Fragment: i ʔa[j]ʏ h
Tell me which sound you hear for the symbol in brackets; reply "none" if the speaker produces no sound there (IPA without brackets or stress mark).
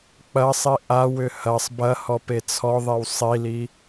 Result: w